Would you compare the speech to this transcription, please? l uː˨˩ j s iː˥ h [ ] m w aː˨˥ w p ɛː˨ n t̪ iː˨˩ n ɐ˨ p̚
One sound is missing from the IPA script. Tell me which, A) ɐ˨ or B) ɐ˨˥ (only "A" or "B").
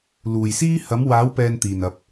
B